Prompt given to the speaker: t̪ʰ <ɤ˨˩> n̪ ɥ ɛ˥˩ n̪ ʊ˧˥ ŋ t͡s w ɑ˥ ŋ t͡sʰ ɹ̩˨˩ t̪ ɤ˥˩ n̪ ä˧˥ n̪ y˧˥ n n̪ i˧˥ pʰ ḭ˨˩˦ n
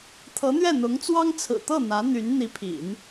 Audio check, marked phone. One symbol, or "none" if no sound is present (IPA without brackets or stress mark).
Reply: ɤ˧˥